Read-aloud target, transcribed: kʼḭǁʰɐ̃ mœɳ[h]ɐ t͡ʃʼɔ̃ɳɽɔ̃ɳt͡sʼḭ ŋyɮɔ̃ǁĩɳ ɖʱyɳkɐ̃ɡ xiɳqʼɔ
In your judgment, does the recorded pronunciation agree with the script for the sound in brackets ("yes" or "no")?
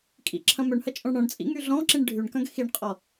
yes